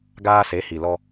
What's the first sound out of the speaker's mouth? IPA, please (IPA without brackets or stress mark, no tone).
ɡ